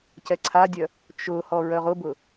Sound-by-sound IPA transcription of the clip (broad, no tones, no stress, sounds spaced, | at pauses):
c ɛ ǀʰ a dʲ œ | t͡ʃ ʊ h ɔ ɹ œ ʁ ʊ b ʊ